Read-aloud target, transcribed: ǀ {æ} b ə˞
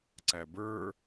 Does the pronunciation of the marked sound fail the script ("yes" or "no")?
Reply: no